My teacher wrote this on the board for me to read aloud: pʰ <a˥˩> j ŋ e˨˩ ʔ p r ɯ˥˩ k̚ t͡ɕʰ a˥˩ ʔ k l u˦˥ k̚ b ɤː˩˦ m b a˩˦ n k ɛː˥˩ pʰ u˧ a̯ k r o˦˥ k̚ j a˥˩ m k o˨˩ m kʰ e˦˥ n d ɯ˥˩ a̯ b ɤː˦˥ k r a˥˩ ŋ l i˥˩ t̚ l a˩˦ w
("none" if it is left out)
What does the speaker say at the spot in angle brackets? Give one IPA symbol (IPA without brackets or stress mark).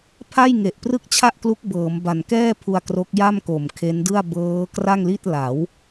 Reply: a˥˩